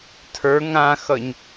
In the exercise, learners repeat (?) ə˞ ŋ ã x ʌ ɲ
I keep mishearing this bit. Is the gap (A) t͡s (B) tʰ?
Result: B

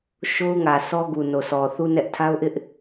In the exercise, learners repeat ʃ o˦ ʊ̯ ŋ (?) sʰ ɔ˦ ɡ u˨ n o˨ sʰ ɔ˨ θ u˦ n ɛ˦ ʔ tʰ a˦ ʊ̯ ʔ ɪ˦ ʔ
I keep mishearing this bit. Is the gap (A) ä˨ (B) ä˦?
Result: A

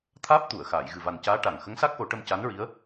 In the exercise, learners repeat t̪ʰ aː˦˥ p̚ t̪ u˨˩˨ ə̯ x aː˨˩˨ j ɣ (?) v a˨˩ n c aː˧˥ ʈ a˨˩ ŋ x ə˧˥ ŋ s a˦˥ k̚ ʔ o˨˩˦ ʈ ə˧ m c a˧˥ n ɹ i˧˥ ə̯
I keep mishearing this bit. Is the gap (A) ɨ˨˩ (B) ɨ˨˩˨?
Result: A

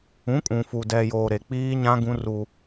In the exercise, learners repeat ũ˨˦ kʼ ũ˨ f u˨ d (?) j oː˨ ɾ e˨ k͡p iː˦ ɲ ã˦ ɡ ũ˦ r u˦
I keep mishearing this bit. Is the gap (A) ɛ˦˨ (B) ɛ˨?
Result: B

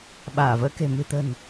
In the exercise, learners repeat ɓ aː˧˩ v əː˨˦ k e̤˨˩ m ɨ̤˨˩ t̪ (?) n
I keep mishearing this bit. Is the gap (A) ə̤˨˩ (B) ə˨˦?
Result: A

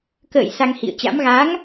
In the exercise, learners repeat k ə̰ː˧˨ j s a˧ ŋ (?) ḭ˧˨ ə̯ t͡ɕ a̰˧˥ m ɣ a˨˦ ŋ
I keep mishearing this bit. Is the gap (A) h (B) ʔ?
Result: A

